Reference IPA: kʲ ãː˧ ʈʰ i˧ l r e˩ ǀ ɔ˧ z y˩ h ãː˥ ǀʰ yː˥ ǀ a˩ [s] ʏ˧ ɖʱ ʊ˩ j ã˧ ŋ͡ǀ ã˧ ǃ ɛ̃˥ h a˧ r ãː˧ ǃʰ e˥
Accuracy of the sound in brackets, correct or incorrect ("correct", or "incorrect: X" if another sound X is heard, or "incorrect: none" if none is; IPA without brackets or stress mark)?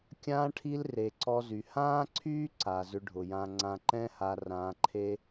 incorrect: z